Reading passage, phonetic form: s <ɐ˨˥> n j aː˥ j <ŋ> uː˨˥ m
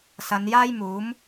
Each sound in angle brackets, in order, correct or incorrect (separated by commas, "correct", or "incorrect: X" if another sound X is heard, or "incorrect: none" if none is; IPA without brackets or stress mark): incorrect: ɐ˨˧, incorrect: m